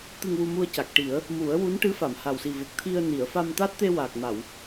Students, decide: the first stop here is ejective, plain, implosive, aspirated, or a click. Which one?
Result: plain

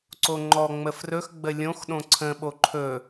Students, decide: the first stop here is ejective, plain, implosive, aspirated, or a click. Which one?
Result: click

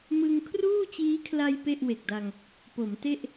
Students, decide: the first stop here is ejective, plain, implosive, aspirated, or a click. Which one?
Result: aspirated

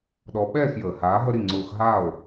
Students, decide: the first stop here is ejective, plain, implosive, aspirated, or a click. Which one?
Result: implosive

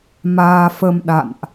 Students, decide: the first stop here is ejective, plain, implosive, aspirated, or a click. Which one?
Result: implosive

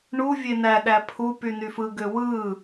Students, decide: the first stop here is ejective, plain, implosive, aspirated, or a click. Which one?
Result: implosive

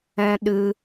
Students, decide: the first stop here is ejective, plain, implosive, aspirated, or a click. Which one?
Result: implosive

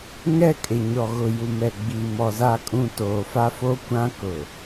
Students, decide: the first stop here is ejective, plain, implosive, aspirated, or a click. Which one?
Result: ejective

